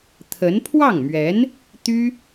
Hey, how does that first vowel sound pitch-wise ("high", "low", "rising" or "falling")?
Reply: rising